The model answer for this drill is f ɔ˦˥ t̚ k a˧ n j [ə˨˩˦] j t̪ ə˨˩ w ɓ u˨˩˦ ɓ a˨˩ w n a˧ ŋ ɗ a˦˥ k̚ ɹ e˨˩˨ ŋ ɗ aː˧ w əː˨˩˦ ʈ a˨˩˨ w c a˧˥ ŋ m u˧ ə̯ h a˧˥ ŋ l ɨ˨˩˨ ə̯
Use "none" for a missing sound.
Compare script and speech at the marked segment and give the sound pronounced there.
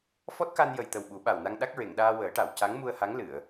ə˨˩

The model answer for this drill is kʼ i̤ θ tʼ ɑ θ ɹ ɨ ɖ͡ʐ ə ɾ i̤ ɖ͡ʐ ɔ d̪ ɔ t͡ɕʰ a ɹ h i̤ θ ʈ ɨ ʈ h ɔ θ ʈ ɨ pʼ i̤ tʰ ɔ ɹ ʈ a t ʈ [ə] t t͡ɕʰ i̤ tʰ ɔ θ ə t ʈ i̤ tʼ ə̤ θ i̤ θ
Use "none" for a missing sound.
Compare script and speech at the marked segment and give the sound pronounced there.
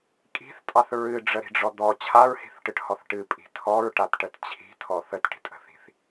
ə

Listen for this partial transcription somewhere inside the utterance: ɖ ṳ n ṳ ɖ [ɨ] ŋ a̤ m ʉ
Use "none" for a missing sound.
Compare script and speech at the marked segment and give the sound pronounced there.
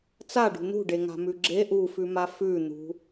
e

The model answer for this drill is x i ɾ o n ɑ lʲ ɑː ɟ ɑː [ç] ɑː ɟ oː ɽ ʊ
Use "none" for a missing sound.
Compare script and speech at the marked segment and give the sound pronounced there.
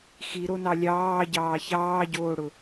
ç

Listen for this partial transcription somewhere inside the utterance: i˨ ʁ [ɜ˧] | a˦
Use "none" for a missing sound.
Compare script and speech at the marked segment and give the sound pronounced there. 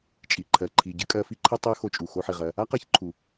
ɜ˧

